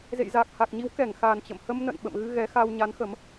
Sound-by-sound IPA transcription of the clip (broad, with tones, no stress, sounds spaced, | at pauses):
z ḛ˧˨ j z aː˨˩ k̚ h a˨˩ k̚ ɲ i˨˦ w k ɛ˧˩ ŋ x a˨˩ n t͡ɕ ə̰˧˨ m h ə˧ m n ə̰˧˨ n ɓ ə̰˧˨ m ɣ ɨ˧ ɣ ɛ˨˦ x a˧ w ɲ a˨˦ n x ə˨˦ m